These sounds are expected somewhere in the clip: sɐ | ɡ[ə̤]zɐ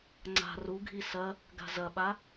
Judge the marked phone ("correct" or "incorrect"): incorrect